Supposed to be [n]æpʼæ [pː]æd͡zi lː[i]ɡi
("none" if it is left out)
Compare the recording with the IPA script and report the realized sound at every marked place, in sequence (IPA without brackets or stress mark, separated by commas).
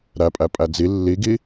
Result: ɾ, pʼ, i